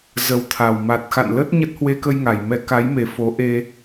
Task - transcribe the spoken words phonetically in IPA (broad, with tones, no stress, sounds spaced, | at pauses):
z ə˨˦ w t̪ʰ a˨˩ w m a˨˩ t̚ x a̰˧˨ n l ə˦˥ t̚ ɲ ə˦˥ t̚ h w e˧ k ə˧ j ŋ a˧˩ j m ɛ˨˦ k a˨˦ j m e˨˩ f o˨˦ ʔ e˧